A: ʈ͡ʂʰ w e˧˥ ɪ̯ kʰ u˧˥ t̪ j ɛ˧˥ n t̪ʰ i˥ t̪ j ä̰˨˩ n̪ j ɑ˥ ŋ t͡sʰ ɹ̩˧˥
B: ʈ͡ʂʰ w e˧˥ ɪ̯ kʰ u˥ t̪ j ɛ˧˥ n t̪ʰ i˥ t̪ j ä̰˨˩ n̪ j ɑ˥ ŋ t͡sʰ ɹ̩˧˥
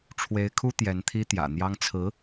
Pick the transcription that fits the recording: B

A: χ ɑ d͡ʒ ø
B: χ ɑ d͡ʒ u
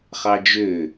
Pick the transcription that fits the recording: A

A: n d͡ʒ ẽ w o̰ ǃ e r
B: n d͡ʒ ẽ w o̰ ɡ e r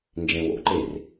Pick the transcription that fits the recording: A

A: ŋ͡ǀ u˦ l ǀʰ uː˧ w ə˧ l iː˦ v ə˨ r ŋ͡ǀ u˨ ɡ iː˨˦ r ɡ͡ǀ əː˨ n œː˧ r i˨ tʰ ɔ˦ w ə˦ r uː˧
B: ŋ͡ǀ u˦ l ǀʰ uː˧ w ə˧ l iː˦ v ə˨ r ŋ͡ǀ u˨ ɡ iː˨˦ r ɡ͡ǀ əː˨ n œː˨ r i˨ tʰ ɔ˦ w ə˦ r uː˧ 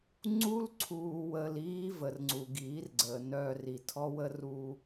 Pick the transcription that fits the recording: A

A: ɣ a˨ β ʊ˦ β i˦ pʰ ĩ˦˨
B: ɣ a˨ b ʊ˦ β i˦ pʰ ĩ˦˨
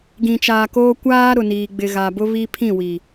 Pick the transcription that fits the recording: B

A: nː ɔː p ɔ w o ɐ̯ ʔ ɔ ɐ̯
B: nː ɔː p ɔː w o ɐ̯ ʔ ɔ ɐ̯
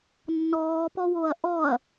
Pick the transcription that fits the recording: A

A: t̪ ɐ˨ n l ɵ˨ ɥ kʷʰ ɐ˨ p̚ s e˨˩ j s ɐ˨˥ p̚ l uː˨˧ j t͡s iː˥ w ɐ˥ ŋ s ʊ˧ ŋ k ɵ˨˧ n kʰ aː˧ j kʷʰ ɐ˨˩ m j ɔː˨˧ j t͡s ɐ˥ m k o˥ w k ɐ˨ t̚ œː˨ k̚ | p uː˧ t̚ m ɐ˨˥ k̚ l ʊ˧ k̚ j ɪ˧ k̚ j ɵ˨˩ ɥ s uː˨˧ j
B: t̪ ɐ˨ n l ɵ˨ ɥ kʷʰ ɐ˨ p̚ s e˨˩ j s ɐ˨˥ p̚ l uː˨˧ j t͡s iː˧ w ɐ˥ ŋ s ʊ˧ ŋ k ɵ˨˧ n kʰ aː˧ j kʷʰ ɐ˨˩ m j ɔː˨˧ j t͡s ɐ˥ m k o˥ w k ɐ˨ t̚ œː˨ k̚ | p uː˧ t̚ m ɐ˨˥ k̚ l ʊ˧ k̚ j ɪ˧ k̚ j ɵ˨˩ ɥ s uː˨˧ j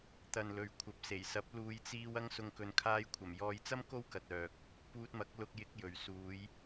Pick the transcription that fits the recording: B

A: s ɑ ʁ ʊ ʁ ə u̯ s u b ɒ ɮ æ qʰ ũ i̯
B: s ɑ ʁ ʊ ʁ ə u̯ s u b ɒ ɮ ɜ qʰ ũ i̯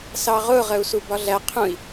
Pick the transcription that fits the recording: A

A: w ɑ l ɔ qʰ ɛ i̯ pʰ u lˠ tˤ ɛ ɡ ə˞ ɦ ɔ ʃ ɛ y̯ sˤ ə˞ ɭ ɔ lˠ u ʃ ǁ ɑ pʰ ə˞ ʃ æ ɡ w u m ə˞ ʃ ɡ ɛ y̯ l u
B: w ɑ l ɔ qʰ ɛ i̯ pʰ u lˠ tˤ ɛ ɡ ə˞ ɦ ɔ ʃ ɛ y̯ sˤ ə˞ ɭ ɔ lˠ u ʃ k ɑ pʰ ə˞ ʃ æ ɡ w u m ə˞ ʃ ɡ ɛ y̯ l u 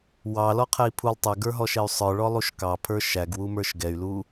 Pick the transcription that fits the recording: B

